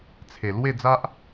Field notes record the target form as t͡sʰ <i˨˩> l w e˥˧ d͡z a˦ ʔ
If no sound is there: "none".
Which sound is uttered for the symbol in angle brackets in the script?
e˨˩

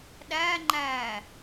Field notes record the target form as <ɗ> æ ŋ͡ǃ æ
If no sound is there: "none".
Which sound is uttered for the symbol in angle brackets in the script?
ɗ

